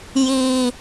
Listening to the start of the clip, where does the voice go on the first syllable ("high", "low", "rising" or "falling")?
high